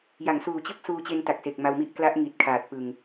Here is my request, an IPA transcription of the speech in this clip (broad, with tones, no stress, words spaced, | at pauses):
ja˩˦ŋsuː˨˩t͡ɕɯ˥˩k̚ suː˧t͡ɕe˧nta˨˩k̚se˨˩k̚ ma˧wmi˥˩ʔ kla˦˥ʔŋi˨˩t̚ kʰaː˨˩t̚pɯ˨˩ŋ